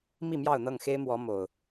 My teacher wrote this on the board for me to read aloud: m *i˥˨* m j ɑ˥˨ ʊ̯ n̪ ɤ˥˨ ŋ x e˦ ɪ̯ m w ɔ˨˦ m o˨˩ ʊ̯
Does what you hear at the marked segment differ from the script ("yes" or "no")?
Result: no